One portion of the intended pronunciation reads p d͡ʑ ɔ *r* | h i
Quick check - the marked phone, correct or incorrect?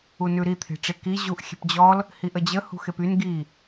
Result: incorrect